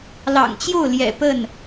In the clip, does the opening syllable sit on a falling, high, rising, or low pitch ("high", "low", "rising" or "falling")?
low